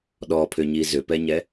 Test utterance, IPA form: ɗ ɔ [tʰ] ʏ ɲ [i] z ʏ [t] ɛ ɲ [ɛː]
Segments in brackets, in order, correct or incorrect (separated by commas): incorrect, correct, incorrect, incorrect